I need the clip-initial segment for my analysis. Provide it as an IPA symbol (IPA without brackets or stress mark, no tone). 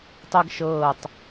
tˤ